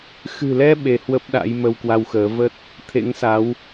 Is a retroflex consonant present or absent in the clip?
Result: absent